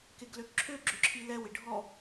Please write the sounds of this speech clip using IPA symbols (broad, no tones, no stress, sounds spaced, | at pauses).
k ɪ ɡ l ø p ǁʰ ø ɡ͡ǁ ø ǁʰ i l ɛ w ɪ ɖʱ ɔ